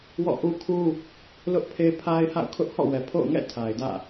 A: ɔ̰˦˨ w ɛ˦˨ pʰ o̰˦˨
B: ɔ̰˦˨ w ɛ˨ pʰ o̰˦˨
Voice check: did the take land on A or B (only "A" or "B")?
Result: B